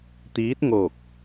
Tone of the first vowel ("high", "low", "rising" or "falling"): rising